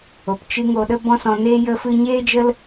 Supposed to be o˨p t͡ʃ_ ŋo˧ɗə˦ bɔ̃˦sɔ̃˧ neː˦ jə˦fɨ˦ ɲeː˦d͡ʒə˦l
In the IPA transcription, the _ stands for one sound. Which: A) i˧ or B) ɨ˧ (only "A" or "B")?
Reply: B